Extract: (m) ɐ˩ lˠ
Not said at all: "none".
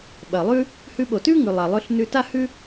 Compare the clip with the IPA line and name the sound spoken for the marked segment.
ɓ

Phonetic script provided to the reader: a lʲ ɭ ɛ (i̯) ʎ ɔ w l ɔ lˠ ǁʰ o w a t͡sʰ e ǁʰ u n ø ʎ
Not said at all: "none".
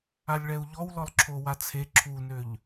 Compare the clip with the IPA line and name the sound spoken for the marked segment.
u̯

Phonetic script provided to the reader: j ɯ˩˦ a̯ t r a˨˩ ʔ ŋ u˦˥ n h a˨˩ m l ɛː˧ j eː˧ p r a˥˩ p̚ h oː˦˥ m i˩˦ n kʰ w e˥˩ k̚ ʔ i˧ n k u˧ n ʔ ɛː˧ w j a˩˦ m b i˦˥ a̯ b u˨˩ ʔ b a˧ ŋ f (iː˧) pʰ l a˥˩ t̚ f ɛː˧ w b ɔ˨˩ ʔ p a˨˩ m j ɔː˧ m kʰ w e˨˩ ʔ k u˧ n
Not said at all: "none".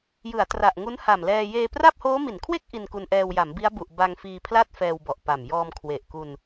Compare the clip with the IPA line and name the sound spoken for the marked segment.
iː˧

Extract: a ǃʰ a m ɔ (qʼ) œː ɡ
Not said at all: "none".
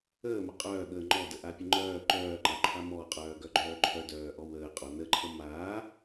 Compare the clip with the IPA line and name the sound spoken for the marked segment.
qʼ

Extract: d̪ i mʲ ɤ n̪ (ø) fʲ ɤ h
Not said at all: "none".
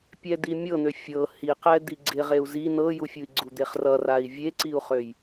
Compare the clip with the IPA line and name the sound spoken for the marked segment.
ø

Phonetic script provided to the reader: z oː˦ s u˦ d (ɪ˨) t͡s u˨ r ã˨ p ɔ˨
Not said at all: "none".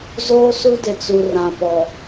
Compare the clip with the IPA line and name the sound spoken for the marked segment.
ɪ˨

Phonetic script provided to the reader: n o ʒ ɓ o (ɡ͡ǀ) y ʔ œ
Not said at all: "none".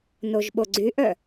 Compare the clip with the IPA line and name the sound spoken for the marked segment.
ɡ͡ǀ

